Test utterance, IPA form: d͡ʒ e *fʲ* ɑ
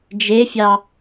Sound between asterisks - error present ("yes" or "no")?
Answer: no